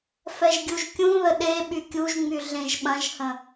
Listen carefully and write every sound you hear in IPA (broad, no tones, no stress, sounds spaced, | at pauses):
f ɛ ʒ ɡʲ u ʒ kʲ ũ ð ə ɗ e ɓ y kʲ u ʒ ŋ͡m y ɮ ẽ ʒ ɓ ɐ̃ ʒ h ə̃